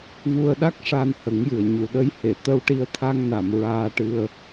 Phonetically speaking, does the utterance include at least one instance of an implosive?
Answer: yes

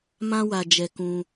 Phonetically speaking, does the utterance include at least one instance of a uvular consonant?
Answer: no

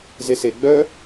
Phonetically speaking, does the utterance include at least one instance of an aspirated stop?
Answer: no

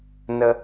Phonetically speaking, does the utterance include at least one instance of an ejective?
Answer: no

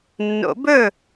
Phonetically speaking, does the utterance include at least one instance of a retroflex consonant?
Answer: no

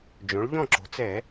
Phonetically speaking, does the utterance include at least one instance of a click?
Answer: yes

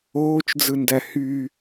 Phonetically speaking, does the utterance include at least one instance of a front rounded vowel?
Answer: yes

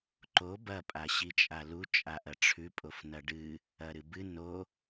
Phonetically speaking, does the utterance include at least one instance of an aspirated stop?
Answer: yes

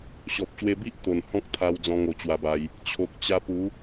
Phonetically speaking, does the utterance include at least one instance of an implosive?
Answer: no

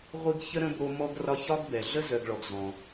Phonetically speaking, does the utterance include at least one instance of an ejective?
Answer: no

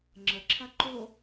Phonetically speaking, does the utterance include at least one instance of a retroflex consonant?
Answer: no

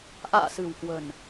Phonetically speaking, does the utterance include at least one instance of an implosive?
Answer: no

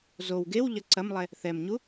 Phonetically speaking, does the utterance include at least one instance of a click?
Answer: yes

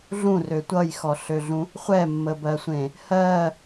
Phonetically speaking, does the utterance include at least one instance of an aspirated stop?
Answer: no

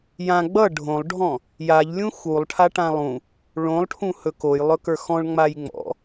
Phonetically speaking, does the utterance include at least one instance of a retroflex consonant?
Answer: yes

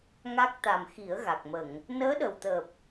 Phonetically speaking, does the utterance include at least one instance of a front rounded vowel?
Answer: no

